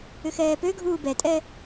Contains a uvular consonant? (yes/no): no